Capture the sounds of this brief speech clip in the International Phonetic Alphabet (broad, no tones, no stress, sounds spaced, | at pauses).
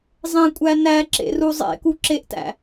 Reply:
zˤ ẽ kʷʼ æ n æ ǁ ḛ r u zˤ ḛ k u ǁ e ʔ t æ̰